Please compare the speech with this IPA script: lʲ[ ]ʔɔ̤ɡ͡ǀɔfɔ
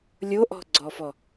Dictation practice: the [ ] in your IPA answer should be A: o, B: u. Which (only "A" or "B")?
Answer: A